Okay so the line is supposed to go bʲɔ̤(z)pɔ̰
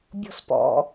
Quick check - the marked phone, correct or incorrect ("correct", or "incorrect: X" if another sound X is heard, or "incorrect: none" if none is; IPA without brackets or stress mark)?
incorrect: s